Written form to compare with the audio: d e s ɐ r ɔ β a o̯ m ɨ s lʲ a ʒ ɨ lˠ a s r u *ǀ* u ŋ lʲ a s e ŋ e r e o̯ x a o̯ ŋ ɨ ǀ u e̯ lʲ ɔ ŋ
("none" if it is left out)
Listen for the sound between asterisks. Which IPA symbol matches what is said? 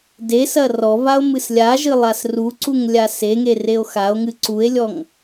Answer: ǀ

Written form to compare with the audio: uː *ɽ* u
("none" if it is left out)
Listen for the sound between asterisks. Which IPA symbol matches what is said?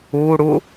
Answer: ɽ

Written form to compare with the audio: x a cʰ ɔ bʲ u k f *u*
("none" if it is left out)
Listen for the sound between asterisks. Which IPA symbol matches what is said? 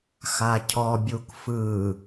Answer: ɯ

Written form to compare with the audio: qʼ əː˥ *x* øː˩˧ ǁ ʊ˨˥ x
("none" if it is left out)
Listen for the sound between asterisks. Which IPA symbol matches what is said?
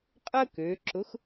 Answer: k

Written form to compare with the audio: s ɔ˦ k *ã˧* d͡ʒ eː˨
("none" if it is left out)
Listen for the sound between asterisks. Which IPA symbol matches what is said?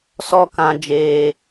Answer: ã˧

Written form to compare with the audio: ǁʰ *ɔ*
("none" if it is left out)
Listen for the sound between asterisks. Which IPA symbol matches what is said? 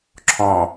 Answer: ɔ̃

